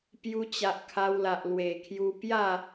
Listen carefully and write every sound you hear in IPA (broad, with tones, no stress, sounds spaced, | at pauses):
p j u˧ t͡ɕ a˨ ʔ kʰ a˧ w l a˨ ʔ l w e˨˩ kʰ j u˧ p j a˥˧